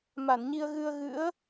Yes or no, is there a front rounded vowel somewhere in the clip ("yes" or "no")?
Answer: no